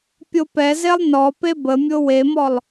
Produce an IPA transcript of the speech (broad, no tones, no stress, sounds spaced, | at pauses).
pʲ o p ɛ z e lˠ n ɔ p e b ə mʲ o w e m ɔ lˠ